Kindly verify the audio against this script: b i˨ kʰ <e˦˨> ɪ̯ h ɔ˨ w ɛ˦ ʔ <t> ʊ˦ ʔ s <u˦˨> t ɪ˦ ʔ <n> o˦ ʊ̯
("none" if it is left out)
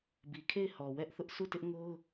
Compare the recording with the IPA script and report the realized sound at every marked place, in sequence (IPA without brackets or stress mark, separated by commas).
e˦˨, θ, u˦˨, ŋ